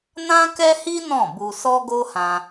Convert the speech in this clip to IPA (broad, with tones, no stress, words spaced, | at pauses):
nã˦kɛ˦hi˦ nɔ̃˦˨bu˧ sɔ˦ɡo˦hã˧